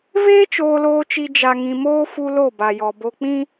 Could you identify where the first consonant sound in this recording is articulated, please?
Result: labial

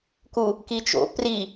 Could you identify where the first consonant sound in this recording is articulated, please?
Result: velar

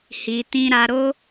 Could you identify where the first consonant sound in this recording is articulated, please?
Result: glottal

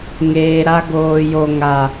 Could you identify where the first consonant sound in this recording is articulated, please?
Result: velar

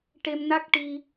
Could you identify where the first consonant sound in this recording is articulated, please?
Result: retroflex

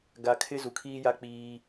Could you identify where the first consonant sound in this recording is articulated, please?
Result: velar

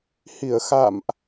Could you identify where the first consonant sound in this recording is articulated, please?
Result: glottal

